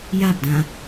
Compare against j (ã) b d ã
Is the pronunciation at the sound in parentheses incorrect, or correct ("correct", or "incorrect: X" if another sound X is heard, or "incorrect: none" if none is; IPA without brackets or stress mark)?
incorrect: a